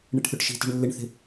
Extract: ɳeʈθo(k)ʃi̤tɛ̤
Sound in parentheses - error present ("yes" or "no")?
yes